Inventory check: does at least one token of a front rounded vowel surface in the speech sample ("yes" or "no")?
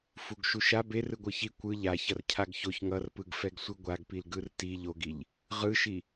no